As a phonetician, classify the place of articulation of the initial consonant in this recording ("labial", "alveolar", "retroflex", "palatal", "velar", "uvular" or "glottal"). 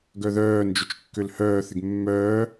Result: velar